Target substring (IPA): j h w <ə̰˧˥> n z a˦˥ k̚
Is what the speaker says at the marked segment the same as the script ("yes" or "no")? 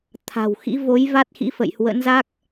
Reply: yes